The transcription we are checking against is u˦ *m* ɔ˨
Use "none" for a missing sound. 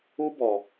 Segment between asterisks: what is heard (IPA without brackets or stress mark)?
b